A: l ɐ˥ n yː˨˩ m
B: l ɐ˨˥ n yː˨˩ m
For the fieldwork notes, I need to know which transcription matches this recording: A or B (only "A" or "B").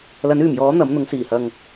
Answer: B